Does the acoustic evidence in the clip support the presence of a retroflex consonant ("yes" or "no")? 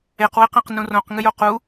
no